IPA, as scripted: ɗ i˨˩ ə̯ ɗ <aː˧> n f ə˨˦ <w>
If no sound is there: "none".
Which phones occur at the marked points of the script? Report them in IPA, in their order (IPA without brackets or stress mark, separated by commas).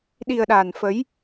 aː˨˩, j